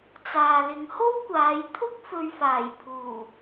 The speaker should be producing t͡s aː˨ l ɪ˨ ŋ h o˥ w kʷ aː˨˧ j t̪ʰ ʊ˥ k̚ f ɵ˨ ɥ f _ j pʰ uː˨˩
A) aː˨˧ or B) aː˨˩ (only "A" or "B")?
B